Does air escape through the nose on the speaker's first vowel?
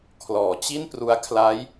no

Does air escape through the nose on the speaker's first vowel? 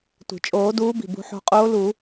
no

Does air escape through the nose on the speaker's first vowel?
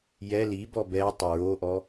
no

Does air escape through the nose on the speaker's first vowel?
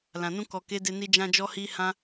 yes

